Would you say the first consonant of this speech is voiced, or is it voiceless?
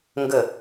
voiced